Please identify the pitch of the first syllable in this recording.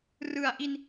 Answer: low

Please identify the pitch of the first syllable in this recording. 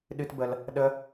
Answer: high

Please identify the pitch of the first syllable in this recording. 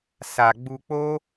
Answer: low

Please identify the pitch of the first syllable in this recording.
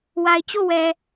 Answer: low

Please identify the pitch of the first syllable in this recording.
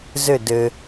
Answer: falling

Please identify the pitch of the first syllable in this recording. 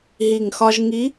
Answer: low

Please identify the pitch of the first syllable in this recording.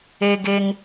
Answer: high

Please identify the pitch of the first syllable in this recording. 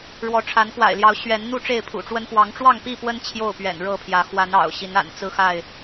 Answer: rising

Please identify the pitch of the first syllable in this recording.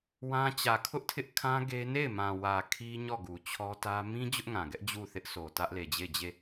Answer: high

